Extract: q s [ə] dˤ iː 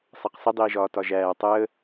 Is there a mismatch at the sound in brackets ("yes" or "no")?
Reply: no